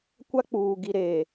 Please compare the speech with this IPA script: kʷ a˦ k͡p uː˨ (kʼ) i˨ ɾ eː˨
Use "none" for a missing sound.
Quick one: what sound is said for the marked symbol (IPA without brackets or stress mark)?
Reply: ɡ